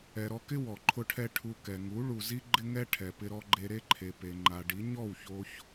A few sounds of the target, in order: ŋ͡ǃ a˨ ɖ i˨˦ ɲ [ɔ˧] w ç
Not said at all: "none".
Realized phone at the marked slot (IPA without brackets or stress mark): ɔ˦˨